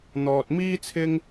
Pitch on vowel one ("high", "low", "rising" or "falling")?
low